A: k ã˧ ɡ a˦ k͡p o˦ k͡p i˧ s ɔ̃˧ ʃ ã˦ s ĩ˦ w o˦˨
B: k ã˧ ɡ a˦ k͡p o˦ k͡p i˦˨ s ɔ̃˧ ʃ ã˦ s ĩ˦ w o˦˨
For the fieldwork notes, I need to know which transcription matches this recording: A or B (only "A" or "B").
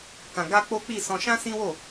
B